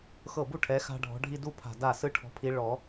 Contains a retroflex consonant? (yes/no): yes